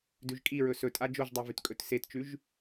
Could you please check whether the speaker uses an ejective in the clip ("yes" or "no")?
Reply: yes